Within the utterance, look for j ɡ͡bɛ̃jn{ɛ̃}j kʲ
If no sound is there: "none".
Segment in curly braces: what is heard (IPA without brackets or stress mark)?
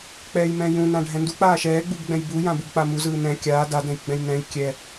ɛ̃